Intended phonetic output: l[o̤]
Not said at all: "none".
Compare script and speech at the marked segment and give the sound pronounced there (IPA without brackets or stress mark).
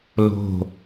o̤